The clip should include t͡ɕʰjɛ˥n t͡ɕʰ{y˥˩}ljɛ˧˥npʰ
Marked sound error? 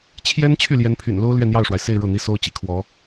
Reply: no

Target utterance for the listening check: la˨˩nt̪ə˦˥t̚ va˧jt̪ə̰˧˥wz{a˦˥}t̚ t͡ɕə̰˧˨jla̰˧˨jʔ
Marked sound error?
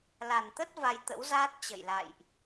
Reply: yes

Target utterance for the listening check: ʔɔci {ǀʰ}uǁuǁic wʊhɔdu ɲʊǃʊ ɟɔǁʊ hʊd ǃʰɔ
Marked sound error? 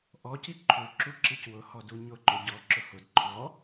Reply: yes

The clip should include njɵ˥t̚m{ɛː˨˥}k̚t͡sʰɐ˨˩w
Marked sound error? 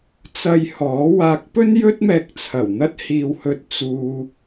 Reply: yes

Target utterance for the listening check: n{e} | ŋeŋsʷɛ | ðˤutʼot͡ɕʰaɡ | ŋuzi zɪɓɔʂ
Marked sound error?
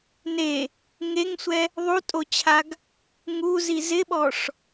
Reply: no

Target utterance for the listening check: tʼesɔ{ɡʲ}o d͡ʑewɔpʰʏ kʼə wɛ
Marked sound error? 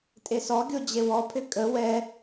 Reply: no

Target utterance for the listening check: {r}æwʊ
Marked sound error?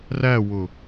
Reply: no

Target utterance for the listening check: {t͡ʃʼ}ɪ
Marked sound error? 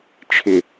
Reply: yes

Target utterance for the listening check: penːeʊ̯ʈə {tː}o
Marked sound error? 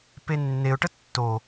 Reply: no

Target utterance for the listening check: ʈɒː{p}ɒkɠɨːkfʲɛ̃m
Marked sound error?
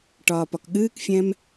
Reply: no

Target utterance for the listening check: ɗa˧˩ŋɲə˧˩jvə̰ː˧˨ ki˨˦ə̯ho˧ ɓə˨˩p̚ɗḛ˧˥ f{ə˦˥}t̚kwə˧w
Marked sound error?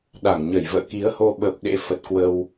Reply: yes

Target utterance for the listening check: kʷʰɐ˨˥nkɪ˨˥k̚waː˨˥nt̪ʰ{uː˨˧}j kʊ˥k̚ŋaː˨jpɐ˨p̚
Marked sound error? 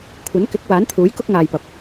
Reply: yes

